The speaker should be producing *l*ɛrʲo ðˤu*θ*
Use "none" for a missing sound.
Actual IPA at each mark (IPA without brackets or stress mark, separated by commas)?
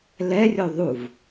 l, v